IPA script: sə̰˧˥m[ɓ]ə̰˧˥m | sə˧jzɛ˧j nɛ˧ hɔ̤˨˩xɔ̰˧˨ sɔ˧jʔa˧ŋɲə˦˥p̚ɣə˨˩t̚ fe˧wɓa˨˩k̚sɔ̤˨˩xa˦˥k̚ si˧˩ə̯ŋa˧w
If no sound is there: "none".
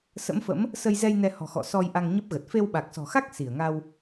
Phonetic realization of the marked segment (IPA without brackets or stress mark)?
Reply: f